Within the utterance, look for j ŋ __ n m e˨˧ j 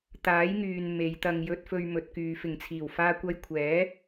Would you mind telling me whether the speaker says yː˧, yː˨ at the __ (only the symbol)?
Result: yː˨